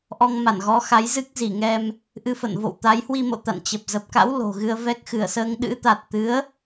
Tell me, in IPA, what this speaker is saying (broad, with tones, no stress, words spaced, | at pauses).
ʔɔ˧ŋma˧˩nɣɔ˨˦ xa˨˦jzɨ˦˥k̚ zi˧˩ŋɛ˧m | ʔɨ˧fə̰˧˨n vo̰˧˨wt̪a˨˦jhwi˧mo̰˧˨ t̪a̰˧˨nt͡ɕə˨˩p̚ zə˨˩p̚ka̰˧˥w lo̤˨˩ɣɨ˧ə̯ vɛ˦˥k̚xɨ˧˩ə̯səː˧ŋ ɗɨ̰˧˥t̪a˨˩t̚ t̪ɨ˨˦ə̯